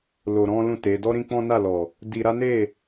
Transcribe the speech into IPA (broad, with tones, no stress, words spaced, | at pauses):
lo˧ɾɔ̃˦lũ˦˨te˨˦ dɔ˦ɾĩ˦ k͡pɔ̃˦na˦˨lɔ˨ | di˧ ɾa˦ne˦˨